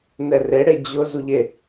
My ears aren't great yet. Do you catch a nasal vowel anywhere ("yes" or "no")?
no